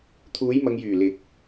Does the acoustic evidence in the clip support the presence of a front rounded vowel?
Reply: yes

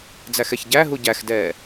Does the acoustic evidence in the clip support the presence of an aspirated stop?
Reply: no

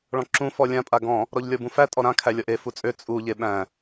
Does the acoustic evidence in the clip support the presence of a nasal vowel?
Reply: yes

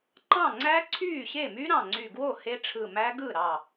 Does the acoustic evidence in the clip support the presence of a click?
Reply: yes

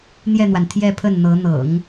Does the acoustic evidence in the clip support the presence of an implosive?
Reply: no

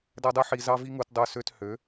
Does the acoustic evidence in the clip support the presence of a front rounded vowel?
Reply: yes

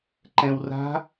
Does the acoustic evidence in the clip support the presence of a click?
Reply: yes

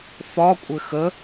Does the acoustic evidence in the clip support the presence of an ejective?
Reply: yes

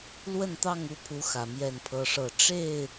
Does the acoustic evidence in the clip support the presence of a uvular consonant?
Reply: no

